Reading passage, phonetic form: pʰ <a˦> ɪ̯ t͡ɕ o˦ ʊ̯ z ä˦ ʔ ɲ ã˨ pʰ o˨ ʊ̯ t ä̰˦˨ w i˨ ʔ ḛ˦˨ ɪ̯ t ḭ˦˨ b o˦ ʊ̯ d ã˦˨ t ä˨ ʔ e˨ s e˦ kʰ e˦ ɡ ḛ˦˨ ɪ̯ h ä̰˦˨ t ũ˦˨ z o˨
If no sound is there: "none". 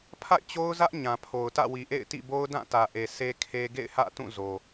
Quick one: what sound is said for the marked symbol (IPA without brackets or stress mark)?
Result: a̰˦˨